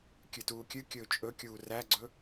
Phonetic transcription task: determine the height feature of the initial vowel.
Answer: high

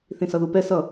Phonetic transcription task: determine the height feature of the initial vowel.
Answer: high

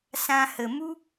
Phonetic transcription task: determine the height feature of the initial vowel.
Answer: low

